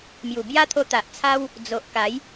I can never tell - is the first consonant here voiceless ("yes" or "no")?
no